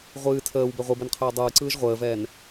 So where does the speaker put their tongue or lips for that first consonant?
uvula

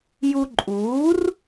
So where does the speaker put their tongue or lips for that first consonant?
palate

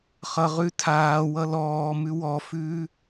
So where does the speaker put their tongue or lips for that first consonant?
uvula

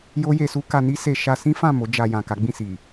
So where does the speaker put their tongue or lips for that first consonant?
palate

